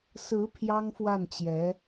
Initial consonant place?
alveolar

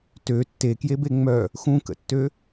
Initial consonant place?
alveolar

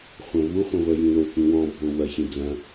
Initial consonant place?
uvular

